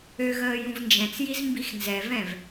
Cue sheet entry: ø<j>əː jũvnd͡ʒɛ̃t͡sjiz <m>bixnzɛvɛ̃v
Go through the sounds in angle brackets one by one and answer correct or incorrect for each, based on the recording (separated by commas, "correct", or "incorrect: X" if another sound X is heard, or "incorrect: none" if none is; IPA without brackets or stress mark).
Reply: incorrect: ɣ, correct